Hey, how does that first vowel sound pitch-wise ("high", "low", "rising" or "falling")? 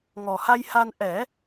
low